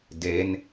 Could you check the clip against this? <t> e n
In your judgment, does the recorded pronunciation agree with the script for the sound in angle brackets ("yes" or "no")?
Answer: no